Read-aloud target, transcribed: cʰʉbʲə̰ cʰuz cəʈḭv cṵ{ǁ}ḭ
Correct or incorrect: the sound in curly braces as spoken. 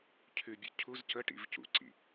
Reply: incorrect: ǀ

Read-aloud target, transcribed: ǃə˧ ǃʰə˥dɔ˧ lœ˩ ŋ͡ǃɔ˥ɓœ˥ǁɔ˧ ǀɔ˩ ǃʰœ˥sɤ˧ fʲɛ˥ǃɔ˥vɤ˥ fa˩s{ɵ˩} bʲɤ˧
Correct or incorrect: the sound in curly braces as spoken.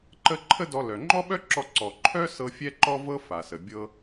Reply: incorrect: ə˩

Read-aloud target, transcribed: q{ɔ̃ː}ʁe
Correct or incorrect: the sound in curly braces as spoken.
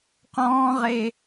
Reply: correct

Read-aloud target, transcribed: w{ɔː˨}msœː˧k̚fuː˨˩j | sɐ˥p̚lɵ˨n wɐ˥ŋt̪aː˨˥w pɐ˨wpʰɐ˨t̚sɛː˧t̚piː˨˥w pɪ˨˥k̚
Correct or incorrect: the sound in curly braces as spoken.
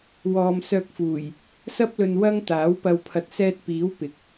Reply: correct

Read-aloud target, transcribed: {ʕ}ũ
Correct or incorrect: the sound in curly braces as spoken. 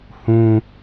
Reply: incorrect: h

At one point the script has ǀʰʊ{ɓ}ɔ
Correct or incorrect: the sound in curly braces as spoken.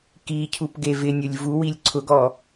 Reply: incorrect: ɡ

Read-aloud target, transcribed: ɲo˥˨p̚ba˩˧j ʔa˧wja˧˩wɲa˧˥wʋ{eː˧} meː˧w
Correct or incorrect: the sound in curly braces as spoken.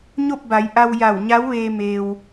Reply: correct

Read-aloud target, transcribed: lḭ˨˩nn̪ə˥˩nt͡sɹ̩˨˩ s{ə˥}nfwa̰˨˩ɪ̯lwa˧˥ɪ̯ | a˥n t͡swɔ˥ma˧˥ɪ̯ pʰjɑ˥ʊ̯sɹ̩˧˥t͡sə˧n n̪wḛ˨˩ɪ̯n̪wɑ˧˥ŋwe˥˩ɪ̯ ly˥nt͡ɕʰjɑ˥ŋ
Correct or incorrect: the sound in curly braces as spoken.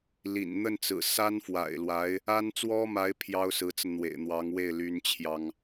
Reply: incorrect: a˥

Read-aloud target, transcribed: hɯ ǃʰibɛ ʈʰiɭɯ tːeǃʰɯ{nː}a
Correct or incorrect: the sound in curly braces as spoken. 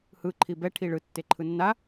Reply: correct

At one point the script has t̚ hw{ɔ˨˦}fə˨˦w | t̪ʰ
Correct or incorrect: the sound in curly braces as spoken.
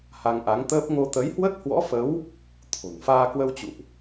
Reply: incorrect: ɔ̰˧˥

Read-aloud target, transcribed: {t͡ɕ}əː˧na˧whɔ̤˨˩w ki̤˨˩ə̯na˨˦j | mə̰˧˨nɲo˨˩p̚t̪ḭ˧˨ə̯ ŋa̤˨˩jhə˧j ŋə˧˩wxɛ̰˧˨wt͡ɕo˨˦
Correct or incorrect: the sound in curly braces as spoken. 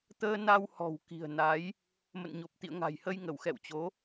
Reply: incorrect: t̪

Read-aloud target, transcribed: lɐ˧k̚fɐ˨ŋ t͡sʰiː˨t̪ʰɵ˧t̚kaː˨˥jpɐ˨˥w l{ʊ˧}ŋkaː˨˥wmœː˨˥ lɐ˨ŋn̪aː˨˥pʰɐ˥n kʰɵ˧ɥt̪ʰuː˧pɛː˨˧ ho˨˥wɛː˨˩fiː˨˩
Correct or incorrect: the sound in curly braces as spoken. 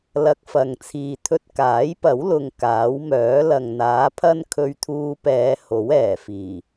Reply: correct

